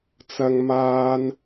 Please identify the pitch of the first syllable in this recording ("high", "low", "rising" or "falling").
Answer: high